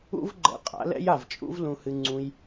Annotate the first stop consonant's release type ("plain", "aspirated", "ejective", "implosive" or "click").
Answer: click